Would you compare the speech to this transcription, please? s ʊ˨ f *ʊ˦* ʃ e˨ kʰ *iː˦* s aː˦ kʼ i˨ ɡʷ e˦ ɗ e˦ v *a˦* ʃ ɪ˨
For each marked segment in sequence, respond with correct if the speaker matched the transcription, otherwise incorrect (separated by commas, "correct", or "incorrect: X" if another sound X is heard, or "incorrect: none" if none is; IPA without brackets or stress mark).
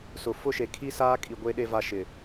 correct, incorrect: i˦, correct